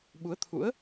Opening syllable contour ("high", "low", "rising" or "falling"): rising